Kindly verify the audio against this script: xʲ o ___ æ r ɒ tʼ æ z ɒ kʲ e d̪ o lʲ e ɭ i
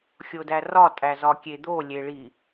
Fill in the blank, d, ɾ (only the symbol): d